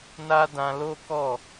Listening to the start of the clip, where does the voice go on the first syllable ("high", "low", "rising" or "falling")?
high